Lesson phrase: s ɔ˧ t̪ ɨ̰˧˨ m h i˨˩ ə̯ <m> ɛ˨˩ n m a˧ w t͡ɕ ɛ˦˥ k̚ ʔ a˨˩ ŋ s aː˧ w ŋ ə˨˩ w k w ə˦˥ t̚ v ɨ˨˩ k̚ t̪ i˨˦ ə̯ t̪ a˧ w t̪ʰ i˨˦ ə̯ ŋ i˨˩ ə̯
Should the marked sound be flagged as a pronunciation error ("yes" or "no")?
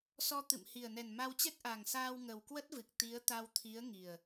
yes